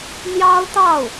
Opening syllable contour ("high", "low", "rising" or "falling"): high